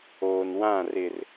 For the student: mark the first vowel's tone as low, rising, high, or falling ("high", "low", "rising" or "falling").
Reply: low